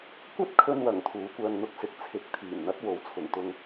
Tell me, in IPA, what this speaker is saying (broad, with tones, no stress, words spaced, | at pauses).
kʷɐ˥t̚kʰɵ˧nwɐ˨˩ŋ t̪ʰuː˨˥ kʷœː˧ŋn̪ʊ˧k̚sɪ˨˥k̚ t͡sʰɪ˨˥k̚t̪ʰiː˨˩nn̪ɐ˨˥t̚ wo˨˥wt͡sʰʊ˨˩ŋ t̪ʊ˨ŋ